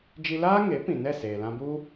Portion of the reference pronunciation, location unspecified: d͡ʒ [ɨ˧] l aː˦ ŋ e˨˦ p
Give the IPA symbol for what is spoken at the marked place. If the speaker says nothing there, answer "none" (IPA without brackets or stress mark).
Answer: i˧